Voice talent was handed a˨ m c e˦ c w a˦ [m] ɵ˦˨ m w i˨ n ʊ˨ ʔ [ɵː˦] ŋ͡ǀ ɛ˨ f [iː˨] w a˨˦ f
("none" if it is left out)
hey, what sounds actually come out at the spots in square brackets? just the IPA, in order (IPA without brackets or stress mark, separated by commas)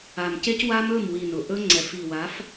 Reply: m, ɵ˦, i˨